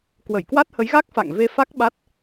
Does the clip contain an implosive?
yes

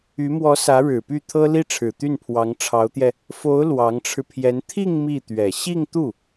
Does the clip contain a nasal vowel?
no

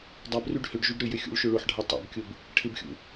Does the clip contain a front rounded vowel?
yes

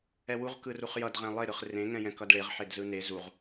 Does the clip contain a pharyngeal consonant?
yes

